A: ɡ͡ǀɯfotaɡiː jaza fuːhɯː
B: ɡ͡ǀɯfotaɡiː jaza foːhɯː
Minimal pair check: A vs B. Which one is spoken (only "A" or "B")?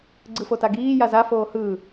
B